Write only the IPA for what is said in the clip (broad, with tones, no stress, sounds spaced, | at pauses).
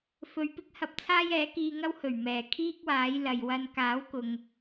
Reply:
f ɵ˧ ɥ p ɪ˥ k̚ h ɐ˧ p̚ t͡sʰ aː˥ j ɛː˨˥ k iː˧ ŋ ɐ˥ w h ɵ˨˩ ɥ m ɛː˨˩ kʰ iː˥ k̚ w aː˨˥ j l ɐ˨ j w ɐ˥ n k aː˨˥ w k ʊ˨ ŋ